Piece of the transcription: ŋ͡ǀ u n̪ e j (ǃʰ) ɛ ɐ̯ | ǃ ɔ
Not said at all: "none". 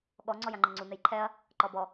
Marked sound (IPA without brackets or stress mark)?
ǃʰ